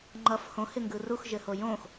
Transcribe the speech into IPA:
ŋ͡ǃʌf hõhɪŋɡɯ ruxʒɘho jõx

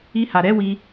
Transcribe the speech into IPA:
i˧ha˨ ɾɛ˨˦wi˧

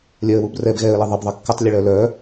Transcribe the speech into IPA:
lʲœə̯wub rɛb ɣɛə̯lə ðˤəbðˤə kːətˤlʲəɭœ lœ

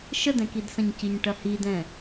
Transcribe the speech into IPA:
ʃədɛ̃kidsɐ̃ɲ ciɲʈɐhidɛ̃

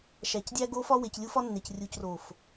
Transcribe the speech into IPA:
ʃæ˨cdʲæ˦ɡo˦fɒ˦ we˨clʲu˦fɒ˦nːe˨c rʲu˨cro˨f

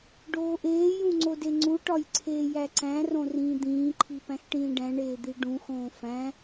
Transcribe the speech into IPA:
ɖoːʔeːjũ ŋ͡ǀodeŋ͡ǀuʈɒj ǀʰeːjæǀæ̃rõ rĩːd̪ĩːǃʰi pæ̃xʈĩːɖæ̃ɳeː d̪iɖũxõː fæ̃

